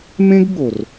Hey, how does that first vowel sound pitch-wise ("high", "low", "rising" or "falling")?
high